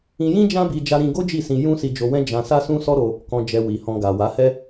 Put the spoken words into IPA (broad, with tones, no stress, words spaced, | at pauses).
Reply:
ĩ˧jĩ˦ d͡ʒã˦bi˧ d͡ʒa˧ɾĩ˧ɡo˦ d͡ʒi˦˨sĩ˧ jũ˦si˧d͡ʒo˧wɛ̃˦ d͡ʒã˧ sa˦sũ˦sɔ˦ɾo˧ | kɔ̃˧d͡ʒɛ˧wi˨hɔ̃˧ ɡa˨ wa˨˦hɛ˦